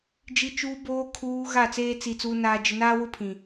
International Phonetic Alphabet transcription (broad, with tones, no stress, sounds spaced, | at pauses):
d͡ʒ i˨ t͡ʃ uː˨ b oː˨ kʰ uː˨ ɣ a˦˨ t͡s eː˦ t͡s i˨ t͡s uː˨ n aː˨ d͡ʒ ɪ˨ n aː˦ w ʊ˦ pʰ ĩ˨